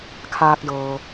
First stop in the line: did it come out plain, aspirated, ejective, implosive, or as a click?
aspirated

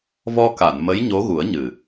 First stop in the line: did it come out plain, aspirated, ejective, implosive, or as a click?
plain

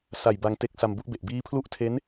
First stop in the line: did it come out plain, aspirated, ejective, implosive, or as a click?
plain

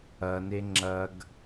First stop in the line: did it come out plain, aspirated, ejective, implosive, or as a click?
click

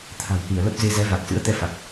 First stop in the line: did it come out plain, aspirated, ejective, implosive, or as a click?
aspirated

